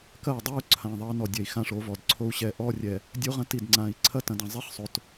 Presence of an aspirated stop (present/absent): present